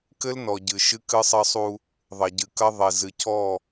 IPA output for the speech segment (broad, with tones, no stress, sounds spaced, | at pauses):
k ɘ˦ l n ɔ˨ ɟ ɨ˨ ʃ ɨ˦ k ɨ˦ sˤ ɘ˦ sˤ u˦ | ðˤ ɐ˨ ɟ ɨ˨ k ɐ˦ ðˤ e˨ z ɨ˨ c ɔ˦˨